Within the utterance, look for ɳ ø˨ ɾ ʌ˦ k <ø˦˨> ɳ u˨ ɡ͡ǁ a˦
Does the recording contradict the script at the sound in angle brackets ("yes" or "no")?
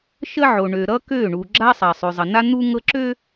no